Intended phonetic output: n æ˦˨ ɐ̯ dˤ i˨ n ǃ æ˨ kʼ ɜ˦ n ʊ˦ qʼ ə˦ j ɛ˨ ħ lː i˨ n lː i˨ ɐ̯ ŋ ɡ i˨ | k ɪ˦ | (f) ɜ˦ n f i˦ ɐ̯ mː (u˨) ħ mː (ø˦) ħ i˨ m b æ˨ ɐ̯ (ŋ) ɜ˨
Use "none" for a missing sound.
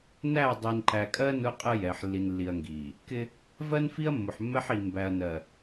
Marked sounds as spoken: v, ʊ˨, ɛ˦, n

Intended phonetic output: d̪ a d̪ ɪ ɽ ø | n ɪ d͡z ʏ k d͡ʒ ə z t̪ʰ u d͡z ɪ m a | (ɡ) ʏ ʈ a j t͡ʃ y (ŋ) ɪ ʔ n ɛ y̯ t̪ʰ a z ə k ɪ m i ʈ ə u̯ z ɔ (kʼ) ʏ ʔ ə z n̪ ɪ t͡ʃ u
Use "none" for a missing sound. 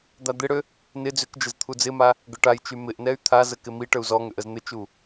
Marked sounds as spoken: ɡ, m, ŋ

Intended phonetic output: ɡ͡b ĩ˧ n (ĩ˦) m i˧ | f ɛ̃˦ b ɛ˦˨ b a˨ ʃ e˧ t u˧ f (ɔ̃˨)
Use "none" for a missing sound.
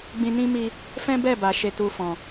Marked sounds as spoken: ĩ˦, ɔ̃˨

